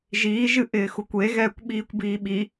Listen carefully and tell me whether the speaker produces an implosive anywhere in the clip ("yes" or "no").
yes